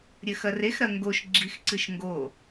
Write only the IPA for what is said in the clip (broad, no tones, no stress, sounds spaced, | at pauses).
ɾʲ ɘ x ɐ r e x ɾ ɐ ŋ ɡ o ʃ ɡ͡ǁ i x ǀ ɨ ʃ ŋ ɡ o